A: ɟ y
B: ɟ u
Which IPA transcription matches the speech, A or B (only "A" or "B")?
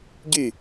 A